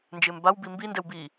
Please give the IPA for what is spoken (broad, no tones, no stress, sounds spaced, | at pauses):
n d͡ʒ ɪː m b a w b i m b i n d ɛ w b iː